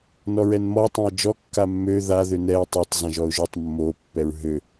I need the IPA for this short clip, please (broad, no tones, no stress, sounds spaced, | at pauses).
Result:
n ɔ ɹ ɛ n m ɔ tˤ õ ə̯ d͡ʒ ɔ kː a mː ø ð a ð ø n ɛ ə̯ tˤ ø tˤ z ã ʒ ɔ ʊ̯ ʒ ɔ tˤ mː o pː ɛ ɹ ɦ ø